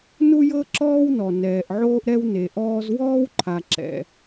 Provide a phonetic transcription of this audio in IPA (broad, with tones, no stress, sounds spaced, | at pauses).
n u˥ j ɤ˥ ǁ ɔː˥ w n ɔ˩ n ɛː˩ ʔ ʕ oː˥ ʔ ɾ ɛ˥ w n e˩ ʔ ɔː˥ z w ɔː˥ w ǃʰ a˩ ǁ ɛ̰˩